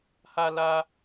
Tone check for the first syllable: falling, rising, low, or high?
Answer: high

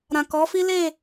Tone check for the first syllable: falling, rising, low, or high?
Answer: low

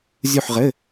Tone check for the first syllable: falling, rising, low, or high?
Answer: falling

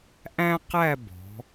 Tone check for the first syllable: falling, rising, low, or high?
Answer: high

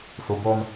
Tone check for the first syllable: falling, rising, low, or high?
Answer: low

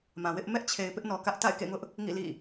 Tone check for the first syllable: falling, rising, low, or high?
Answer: low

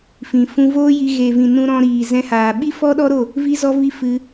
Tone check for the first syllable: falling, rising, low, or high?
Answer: low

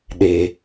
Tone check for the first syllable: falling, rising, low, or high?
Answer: low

